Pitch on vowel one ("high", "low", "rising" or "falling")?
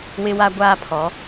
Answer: high